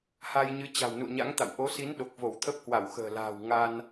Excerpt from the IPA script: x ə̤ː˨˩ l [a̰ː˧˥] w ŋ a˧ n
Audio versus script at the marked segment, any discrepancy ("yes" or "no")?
yes